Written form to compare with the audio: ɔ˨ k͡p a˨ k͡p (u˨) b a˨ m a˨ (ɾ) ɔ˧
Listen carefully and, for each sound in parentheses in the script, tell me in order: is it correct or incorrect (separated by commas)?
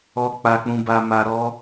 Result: incorrect, correct